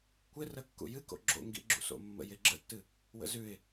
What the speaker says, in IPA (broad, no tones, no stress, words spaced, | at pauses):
kʷɪrə kːṵjɨko̰ ɡ͡ǁo̰ŋɡḭ ɡ͡ǁṵso̰mːə̰jɪ ɡ͡ǁə̰tːɨ | wə̰zʉɪ̯